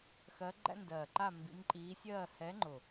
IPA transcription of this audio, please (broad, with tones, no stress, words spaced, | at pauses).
xɜ˧˥ɡ͡ǃæ̰˥ndɜː˨˩ǃa˥˧ mbḭ˧˥mǃʼiː˧˥sʲɜː˥˧ hɛ˧˥ŋ͡ǃʊ˨˩